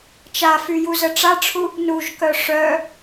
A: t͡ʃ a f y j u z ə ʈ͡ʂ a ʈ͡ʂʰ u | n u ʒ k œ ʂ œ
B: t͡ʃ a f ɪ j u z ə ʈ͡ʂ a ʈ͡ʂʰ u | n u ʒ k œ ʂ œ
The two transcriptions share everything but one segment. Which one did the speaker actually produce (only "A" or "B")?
A